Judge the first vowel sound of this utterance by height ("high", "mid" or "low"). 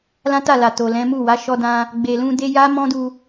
low